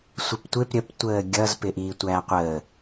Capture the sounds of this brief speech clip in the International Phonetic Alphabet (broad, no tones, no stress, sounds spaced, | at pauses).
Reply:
sʷ ə p tʷ ɪ p ɾʲ ə p tʷ əː ɡʲ ʌ z p ɪ ʔ iː tʷ æː qʷ əː